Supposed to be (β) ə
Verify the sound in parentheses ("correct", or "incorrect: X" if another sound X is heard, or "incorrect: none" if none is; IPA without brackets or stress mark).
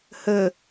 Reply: incorrect: h